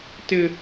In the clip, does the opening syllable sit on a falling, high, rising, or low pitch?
high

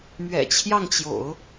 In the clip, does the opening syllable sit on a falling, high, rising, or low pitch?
low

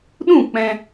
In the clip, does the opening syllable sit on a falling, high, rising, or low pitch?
falling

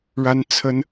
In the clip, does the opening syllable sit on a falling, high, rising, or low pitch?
high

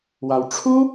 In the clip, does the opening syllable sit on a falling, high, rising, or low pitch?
low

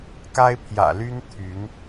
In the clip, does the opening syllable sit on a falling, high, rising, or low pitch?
high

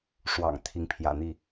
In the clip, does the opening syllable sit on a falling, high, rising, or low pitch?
low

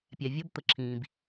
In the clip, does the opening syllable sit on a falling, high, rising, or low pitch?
low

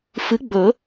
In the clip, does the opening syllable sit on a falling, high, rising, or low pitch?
rising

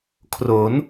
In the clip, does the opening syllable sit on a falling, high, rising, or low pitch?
rising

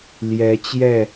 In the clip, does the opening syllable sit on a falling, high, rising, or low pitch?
rising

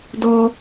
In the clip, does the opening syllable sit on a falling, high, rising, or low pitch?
high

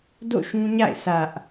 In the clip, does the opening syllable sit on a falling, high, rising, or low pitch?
falling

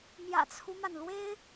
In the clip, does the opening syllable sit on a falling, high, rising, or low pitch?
low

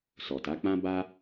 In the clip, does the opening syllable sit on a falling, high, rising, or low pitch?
low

